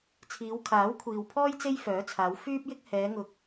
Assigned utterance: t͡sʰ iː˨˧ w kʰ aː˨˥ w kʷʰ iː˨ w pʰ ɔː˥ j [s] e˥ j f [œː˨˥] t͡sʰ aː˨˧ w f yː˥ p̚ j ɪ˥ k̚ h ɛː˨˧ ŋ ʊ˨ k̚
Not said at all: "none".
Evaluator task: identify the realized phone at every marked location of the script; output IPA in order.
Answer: t͡s, œː˨˥

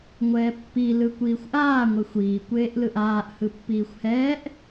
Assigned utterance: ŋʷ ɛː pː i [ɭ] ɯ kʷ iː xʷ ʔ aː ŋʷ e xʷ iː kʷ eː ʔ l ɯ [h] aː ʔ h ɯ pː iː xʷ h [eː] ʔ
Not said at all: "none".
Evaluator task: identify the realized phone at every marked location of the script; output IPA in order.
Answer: l, ʔ, ɛː

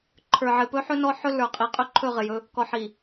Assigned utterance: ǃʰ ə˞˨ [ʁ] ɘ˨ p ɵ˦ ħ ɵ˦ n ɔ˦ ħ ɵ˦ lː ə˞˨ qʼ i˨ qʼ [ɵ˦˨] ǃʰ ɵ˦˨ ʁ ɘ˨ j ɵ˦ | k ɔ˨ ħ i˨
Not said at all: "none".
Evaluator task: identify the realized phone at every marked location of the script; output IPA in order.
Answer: ʕ, ɵ˦˨

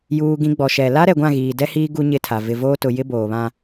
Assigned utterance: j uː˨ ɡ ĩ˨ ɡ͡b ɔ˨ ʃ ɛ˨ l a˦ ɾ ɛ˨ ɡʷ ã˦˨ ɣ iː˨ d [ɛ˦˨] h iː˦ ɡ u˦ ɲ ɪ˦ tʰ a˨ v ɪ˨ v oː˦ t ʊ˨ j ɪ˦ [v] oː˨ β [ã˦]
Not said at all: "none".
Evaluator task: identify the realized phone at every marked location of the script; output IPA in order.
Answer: ɛ˦, b, ã˦

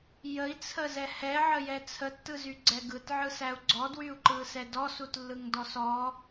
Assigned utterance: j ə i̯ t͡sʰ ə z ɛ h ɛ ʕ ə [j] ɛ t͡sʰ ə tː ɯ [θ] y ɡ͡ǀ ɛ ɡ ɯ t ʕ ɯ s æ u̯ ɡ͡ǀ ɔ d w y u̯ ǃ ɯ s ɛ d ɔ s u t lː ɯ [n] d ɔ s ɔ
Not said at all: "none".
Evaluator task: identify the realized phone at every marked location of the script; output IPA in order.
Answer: j, z, ŋ

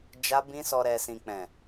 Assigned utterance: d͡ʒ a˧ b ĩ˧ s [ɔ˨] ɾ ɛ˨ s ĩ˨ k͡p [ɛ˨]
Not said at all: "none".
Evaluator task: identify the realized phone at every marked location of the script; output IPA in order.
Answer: ɔ˨, ɛ̃˨

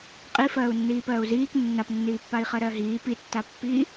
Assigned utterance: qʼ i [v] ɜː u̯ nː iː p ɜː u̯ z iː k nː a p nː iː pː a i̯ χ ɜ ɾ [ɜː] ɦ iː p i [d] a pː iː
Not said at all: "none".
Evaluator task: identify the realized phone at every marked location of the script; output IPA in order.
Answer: f, ɜ, tː

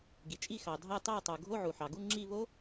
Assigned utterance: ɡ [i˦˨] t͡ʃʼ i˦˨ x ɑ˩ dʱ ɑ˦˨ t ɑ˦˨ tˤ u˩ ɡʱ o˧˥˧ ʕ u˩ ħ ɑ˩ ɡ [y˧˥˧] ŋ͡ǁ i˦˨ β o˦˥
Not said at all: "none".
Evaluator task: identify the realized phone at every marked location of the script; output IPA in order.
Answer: i˩, u˧˥˧

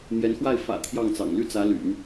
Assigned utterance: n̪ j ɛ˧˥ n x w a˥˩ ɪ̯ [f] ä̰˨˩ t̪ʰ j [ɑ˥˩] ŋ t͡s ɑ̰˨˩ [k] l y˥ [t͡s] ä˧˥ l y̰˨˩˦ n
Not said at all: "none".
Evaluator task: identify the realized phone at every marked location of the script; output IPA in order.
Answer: f, ɑ˥˩, ŋ, t͡s

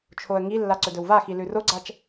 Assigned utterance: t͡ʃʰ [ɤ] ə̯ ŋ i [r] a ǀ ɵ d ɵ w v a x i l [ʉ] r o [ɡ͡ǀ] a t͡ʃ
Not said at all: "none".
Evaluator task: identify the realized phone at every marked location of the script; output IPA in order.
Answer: o, lː, ʉ, ɡ͡ǀ

